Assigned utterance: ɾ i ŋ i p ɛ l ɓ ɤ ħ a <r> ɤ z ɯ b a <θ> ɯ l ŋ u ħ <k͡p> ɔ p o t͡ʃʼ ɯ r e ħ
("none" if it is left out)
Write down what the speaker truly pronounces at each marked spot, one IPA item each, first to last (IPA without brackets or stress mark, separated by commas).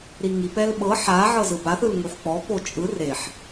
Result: ʕ, θ, k͡p